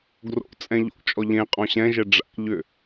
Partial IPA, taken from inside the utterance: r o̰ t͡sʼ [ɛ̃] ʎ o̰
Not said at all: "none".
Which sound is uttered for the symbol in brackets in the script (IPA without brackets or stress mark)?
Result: ɛ̃